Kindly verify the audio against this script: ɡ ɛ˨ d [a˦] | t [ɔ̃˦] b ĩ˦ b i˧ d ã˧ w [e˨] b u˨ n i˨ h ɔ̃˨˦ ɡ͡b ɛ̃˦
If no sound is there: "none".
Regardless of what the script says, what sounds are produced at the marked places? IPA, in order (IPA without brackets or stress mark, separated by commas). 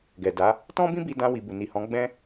a˨˦, ɔ̃˦, i˨